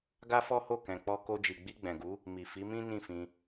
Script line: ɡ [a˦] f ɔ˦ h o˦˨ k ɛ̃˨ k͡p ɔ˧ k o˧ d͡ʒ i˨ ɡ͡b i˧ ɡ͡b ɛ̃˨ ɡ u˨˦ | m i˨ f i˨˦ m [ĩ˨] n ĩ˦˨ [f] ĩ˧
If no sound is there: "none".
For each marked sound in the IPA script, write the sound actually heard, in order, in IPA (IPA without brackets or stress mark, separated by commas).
a˦, ĩ˦, f